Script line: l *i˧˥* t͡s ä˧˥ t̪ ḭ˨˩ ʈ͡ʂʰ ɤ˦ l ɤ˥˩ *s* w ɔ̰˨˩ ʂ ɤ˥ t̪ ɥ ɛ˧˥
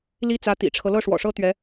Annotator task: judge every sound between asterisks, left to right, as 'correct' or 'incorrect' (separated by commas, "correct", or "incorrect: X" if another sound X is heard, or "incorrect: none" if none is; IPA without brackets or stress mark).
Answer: incorrect: i˥, incorrect: ʂ